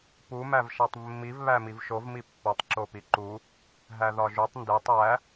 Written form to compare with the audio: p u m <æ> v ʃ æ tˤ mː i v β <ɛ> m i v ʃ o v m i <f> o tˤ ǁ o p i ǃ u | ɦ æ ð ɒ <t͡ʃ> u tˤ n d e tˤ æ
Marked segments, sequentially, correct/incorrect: correct, incorrect, incorrect, incorrect

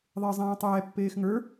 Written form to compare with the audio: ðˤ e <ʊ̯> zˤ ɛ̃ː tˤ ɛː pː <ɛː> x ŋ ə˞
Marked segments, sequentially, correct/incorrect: incorrect, incorrect

